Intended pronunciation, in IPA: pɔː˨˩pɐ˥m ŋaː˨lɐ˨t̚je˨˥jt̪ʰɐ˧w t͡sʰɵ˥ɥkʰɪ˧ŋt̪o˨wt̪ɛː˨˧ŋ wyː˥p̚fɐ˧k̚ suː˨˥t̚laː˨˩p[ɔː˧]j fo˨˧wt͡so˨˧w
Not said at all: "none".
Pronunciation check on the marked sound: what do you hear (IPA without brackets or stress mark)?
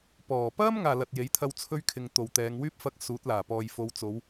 ɔː˨